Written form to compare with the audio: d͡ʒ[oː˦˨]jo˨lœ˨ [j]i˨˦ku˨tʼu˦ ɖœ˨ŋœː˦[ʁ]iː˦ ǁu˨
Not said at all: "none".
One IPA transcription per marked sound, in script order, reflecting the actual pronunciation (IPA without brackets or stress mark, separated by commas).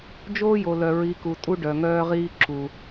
oː˦, ɹ, ʁ